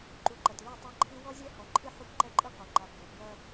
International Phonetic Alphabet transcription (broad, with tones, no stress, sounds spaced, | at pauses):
ǃ u˨ ǃ ɐ˨ t l o˦˨ tˤ ɐ˦ ǃʰ ɨ˦ w ɔ˦ zʲ ɛ˦ h ɔ˨ ǃʰ ɨ˦ ħ u˦ p ǃ ɛ˦ ǃʼ ɨ˦ q o˨ ŋ͡ǃ a˨ bʱ ɛ˨ p j ɐ˦